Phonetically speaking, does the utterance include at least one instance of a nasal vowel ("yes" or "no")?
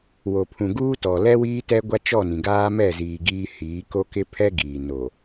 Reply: yes